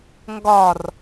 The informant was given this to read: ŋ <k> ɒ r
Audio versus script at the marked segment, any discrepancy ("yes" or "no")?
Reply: yes